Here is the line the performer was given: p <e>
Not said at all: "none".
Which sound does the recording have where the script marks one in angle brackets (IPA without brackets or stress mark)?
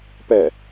ɛ